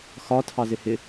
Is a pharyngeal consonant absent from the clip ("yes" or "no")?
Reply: yes